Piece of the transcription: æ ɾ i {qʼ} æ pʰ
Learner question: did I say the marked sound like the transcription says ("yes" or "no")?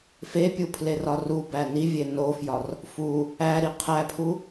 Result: no